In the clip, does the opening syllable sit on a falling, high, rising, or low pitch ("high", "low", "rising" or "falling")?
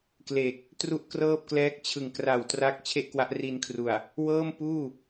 low